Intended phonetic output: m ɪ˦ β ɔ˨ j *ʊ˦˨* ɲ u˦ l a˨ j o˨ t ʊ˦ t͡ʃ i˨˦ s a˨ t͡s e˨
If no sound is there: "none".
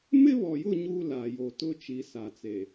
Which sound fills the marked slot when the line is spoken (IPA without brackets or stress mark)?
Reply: ʊ˦˨